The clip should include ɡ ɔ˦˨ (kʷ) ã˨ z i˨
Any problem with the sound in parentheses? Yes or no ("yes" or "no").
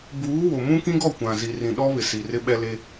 no